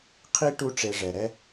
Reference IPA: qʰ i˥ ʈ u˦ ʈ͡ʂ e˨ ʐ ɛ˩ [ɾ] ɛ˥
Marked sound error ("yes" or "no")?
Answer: no